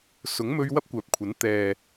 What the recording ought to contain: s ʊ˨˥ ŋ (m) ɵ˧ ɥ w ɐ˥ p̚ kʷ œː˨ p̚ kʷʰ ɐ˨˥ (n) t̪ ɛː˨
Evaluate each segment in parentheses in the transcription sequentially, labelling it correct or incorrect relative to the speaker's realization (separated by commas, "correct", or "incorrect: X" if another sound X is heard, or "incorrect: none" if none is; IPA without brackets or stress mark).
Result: correct, correct